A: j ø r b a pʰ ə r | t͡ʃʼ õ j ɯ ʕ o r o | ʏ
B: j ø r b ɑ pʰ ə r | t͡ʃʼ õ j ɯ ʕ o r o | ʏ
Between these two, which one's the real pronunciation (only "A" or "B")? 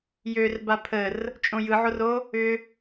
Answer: A